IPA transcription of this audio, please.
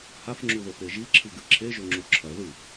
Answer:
h a f ŋ͡ǁ u ð o p e ʒ i ǁʰ ɨ ɡ ɨ ǁʰ e ʒ o ŋ͡ǁ u ǁʰ ɐ ð ɨ f

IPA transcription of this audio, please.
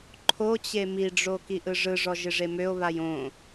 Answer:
ǃʰ o t͡ɕ e m i ɖ͡ʐ o k i ʔ ɯ ʐ ɯ ʐ ɔ ʒ ɪ ʐ e m ø o̯ β a j õ

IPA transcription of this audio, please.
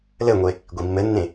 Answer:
l ɘ ŋʷ e | ɡʷ i mː ɘ nː ẽ

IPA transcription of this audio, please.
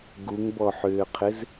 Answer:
ɡ u ŋ b ɔ ħ ʏː qʰ ɪ z

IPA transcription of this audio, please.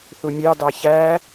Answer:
θ u mʲ ɑ d ɑ ç æ

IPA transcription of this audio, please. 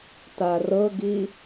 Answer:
t a r ɤ ɡ i

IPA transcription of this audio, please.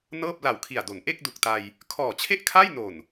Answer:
n ɤː˥˩ p̚ l a˨˩ w kʰ i˨˩ a̯ d o˩˦ n ʔ e˥˩ k̚ d u˨˩ k̚ t a˧ j | kʰ ɔː˨˩ t͡ɕʰ e˥˩ ʔ kʰ a˥˩ j n o˨˩ n

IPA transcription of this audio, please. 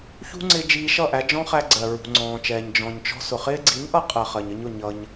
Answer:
ç ṳ˦ ŋ͡ǀ ɪ˧ d͡ʒ iː˧ ʃ ʌ˦˨ ʔ æ˧ d͡ʒ ɔ̃˦ χ æ˧ ɡ͡ǀ ɜ˨ ɹ ṳ˨ ŋ͡ǀ ɔ̃ː˨ t͡ʃ ɛː˨ ɲ d͡ʒ ɔ̃˨ ɲ t͡ʃ ɔ̤˧ s ʊ˨ χ ɪː˦ ɡ͡ǀ i˨˦ ɲ ʔ ʌ˧ qʼ ɜ˨ χ ɜ˨ ɲ ə˧ ɲ ʊ˨ ɲ ʌ˧ ɲ

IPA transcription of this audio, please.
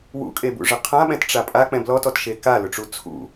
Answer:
w ṵ kʼ e b ṵ ʐ ɪ qʰ ã ɓ ɛ̃ t ʈ͡ʂ a pʼ a k͡p ɛ̃ b l ɔ t ɔ t ʃ e k a l ʊ ʈ͡ʂ u t͡sʰ ṵ

